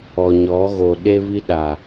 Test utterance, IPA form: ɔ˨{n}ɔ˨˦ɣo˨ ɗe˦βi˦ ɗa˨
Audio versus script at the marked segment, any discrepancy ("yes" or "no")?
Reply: yes